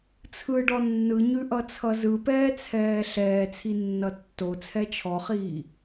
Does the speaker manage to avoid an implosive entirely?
yes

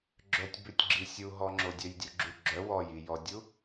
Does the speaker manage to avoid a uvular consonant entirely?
yes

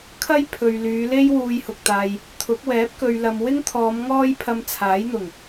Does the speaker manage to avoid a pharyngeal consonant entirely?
yes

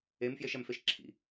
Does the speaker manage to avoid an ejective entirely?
yes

